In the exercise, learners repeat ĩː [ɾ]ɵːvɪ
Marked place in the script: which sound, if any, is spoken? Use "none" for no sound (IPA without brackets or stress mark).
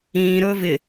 ɾ